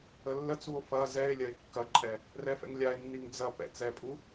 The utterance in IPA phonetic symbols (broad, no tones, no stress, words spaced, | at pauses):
əlːət͡suo̯ fɐ zɛe̯ lʲɐe̯kːɐǃʼɛ | rɛfɛ̰ŋlʲae̯nːiŋ d͡zɐ pɛ̰t͡sɛpʼu